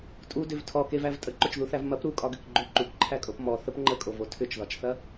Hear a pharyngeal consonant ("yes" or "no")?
no